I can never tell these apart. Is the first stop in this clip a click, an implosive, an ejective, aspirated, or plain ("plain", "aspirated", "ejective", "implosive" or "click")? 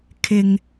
aspirated